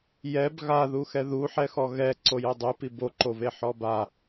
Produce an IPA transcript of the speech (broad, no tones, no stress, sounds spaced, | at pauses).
j ɛ b ɣ a ð u x ɛ ð u ħ ɛ x ɔ ɣ ɛ ǀ o j o dˤ u p i b o ǃ o v e ħ ɔ b a